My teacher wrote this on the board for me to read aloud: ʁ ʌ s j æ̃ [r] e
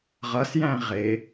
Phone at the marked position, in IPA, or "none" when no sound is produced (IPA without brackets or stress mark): ʁ